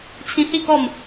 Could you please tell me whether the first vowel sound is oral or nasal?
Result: nasal